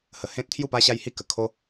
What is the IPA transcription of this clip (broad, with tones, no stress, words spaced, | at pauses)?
hə˨˩hẽ˦t̚t̪ʰju˥˧pa˦ ɕa˦jhi˥˧kə˨˩ kʰo˦